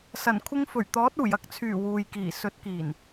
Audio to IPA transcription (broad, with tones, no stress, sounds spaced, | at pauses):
s ɐ˨˩ n kʷʰ ɪ˧ ŋ f ɵ˨˩ ɥ t̪ ɔː˨˥ t̚ uː˨˩ j ɐ˧ k̚ t͡sʰ yː˨˩ w uː˨ j k iː˨˩ s ɵ˨˥ t̚ k iː˨˩ n